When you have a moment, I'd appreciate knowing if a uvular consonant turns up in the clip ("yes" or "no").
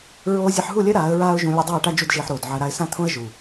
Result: no